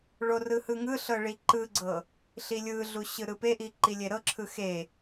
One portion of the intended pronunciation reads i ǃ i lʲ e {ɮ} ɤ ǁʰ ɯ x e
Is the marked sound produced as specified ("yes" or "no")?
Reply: no